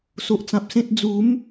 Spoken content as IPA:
so˨ʔt͡sã˨p̚sẽ˦t̚ d͡zu˨˦m

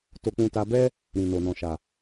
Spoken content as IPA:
to˧k͡pũ˧ta˧bɛ˦ | ɾĩ˨no˨ nɔ̃˨ʃa˨

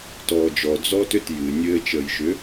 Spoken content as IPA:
tɔːd͡ʒɔ d͡zɔːtʏt jɨ nʲɘːt͡ʃəːjʃʏ

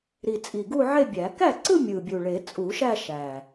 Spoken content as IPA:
ɾi˨˩ t͡sʼi˨˩ɡu˥˧ʕe˥˧bʲæ˨˩˦ kæ˥˩ǀɯ˥˧ mʲɯ˨˩bʲu˨˩ɭe˨˩˦ t͡sʼu˨˩˦ʃæ˥˧ ʃæ˨˩

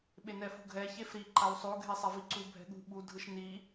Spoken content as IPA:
ɓenɛfṳɡʱɛ çefɾi ǃawsˤo ɡʱesˤaviǀu bʱɛ̤ɠṳ ɓu dʱɯʃni

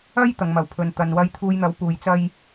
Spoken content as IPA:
ɐ˥j t̪ɐ˨ŋmɐ˨˩wpʰɵ˨n t̪ɐ˨n wɐ˧jt̪ʰuː˧jn̪ɐ˨˥w puː˨˧jt͡sɐ˥j

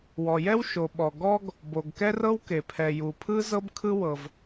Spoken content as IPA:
wɔ˩jɛ˥w ʃo˩ɓɔ˩ ɡɔ˥ɡ | bo˩ɡkɛ˥rɤ˥wke˩ pʰɛ˩ju˩pʰɯ˥ zɤ˥bkʰɯ˥ wɤ˩v

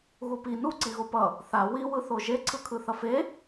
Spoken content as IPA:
ɣupi nu ǀiɣopʌ | θa wi wɯθoʒe ǀʰɯkʰɯθʌfe

